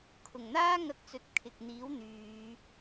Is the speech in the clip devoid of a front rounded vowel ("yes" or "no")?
no